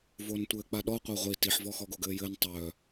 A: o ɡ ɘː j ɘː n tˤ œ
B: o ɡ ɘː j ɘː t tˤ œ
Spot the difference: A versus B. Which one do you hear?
A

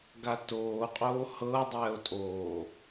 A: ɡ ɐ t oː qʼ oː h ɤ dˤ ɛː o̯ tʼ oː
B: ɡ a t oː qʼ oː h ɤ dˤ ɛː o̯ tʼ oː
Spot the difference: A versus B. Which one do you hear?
B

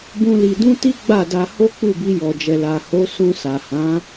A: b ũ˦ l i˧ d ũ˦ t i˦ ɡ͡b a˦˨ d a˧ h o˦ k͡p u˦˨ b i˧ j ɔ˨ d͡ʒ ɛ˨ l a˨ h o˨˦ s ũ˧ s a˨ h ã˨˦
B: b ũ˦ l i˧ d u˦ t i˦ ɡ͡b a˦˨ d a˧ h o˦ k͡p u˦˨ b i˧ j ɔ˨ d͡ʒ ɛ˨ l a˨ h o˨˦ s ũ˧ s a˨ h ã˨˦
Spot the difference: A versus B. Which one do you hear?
A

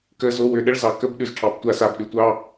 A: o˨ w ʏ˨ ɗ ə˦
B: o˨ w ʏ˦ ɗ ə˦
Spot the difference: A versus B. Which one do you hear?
A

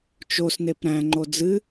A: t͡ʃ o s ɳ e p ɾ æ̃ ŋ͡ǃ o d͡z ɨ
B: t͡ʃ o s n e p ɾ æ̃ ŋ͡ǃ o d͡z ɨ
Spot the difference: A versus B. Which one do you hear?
B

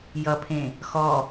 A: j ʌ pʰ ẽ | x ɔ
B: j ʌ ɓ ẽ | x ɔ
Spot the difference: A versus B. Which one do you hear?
A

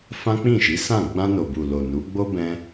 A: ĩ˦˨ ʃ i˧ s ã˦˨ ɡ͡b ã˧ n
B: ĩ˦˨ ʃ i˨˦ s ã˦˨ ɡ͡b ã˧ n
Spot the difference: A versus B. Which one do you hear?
B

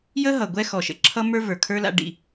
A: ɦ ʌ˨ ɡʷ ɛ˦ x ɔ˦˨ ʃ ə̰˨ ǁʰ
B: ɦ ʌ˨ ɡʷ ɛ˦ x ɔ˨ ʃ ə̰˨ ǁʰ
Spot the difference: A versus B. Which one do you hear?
B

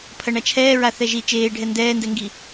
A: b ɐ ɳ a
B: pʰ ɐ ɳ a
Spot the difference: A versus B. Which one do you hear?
B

